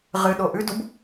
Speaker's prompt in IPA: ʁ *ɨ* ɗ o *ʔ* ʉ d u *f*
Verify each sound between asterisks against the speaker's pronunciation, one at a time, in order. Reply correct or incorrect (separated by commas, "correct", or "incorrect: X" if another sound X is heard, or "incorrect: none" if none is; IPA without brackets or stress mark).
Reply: correct, correct, incorrect: b